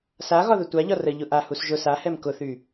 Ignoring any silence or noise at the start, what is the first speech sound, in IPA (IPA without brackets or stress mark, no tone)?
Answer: s